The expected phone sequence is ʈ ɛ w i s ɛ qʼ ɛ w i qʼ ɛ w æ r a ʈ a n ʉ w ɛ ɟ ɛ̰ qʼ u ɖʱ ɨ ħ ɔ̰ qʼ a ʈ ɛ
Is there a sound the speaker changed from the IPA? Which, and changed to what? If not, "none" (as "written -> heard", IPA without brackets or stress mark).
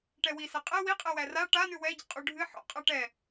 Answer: none